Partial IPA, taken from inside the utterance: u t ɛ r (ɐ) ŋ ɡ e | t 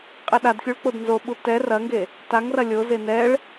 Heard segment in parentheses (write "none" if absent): ɐ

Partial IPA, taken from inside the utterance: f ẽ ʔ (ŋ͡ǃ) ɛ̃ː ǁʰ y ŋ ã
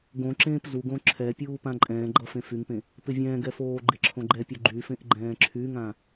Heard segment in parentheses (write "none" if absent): ɡ͡ǃ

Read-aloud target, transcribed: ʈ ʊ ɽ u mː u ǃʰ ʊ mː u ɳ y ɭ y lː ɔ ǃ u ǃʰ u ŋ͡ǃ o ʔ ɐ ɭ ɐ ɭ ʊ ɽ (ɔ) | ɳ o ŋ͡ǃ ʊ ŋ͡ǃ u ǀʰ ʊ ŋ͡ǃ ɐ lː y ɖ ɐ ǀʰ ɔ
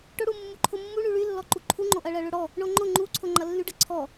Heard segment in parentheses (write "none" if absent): ɔ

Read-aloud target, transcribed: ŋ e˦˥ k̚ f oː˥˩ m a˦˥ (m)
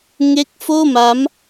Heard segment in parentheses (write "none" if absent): m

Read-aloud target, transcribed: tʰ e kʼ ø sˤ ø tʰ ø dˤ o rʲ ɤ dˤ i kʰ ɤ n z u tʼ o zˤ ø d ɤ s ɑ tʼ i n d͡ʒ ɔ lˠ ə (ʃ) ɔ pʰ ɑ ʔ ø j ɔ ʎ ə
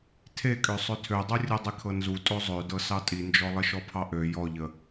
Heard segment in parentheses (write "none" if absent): ʃ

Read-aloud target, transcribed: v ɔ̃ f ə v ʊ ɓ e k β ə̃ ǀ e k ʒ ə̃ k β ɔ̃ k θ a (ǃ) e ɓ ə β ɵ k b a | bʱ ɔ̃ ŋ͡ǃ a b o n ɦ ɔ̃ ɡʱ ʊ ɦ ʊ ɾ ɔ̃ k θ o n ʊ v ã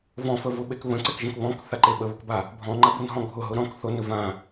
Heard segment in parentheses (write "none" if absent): ǃ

